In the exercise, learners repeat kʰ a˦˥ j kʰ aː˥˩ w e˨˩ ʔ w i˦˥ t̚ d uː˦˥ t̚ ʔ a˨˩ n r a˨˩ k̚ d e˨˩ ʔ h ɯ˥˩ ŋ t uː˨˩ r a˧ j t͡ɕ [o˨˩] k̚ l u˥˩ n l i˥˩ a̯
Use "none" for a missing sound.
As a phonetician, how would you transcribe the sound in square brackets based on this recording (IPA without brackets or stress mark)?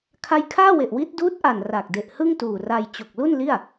o˨˩